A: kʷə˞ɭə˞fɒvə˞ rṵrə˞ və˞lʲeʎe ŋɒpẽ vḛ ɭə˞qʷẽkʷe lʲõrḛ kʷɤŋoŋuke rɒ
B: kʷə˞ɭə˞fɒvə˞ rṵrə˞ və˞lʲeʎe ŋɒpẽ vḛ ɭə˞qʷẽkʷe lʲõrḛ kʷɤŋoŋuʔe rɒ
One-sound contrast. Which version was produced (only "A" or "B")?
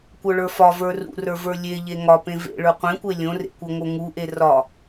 B